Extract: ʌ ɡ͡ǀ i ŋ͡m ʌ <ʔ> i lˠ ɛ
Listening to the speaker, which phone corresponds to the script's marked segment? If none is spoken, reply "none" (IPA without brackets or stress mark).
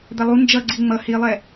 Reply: h